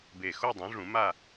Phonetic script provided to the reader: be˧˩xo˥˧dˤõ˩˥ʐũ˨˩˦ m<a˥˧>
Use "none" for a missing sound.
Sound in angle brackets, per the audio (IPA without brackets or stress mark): a˥˧